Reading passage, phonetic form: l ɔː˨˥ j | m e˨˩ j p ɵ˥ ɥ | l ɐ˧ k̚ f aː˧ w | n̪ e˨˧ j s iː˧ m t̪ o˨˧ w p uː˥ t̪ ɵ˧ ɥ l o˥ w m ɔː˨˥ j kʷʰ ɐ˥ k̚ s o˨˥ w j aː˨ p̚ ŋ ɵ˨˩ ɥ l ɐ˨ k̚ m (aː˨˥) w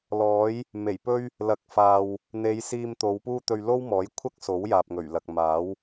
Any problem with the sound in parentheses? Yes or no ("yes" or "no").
no